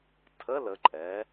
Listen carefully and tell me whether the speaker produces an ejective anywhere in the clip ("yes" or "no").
yes